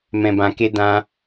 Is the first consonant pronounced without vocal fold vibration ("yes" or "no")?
no